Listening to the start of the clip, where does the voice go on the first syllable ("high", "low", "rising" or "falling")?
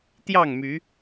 falling